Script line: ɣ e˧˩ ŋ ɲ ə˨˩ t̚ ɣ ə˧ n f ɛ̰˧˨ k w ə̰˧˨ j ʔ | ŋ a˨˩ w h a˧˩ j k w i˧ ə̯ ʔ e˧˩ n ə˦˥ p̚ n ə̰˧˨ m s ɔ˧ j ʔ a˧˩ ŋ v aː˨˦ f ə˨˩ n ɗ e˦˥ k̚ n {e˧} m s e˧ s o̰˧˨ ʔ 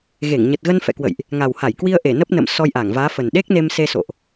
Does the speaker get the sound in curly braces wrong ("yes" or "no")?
no